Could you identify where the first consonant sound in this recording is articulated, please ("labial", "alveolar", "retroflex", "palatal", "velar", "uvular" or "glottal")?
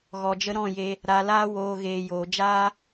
velar